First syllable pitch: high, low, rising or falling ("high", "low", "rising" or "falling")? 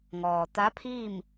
low